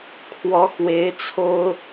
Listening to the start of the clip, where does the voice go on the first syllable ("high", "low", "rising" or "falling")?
rising